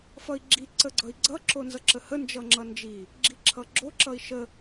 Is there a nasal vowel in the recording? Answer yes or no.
no